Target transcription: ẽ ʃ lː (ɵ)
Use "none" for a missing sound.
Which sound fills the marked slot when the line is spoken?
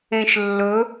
ɵ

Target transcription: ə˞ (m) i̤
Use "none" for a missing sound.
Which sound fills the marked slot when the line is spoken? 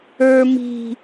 m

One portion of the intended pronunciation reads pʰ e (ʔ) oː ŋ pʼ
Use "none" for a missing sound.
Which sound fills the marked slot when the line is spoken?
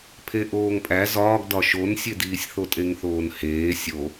ʔ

